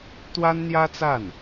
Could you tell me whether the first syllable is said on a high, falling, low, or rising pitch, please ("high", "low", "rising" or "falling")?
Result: high